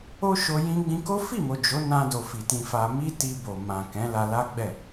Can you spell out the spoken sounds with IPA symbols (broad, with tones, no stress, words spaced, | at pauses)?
o˦ʃo˧ jĩ˧ɡ͡bĩ˧ko˦ fi˦˨mo˨ d͡ʒo˨˦nã˧do˨ fi˨tĩ˧fa˧ mi˦ti˧bo˨ mã˨kɛ̃˨˦ la˧la˦ ɡ͡bɛ˦˨